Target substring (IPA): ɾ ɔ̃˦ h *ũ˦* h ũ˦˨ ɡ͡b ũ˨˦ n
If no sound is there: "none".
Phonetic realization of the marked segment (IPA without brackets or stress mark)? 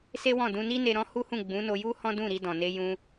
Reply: u˦